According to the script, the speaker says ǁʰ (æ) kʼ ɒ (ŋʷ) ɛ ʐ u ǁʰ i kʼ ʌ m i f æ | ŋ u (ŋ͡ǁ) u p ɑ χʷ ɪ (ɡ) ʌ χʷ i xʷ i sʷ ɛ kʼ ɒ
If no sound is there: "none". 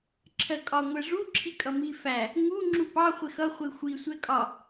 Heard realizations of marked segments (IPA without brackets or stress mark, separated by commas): ɜ, ŋʷ, ŋ͡ǁ, x